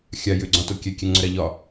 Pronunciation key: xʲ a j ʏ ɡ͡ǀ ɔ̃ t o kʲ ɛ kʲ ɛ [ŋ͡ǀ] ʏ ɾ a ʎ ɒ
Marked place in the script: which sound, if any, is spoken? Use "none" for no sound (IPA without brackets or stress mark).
ŋ͡ǀ